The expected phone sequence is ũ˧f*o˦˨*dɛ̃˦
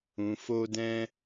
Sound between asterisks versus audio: incorrect: o˦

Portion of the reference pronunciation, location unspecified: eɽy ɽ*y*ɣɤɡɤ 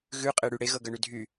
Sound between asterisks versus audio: incorrect: e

